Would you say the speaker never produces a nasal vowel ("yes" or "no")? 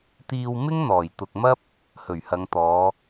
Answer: yes